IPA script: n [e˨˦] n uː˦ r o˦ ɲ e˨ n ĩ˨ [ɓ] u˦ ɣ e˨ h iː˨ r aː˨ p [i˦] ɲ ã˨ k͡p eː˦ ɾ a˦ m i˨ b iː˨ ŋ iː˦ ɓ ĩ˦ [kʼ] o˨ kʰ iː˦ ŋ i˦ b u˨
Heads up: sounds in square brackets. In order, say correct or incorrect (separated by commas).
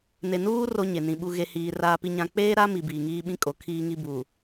incorrect, correct, incorrect, correct